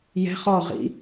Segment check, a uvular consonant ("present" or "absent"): present